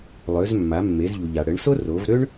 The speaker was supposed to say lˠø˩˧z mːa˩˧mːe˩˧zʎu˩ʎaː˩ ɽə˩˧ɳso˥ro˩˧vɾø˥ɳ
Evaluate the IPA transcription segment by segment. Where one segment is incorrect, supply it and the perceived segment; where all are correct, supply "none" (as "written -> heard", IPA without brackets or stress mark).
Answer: aː˩ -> a˩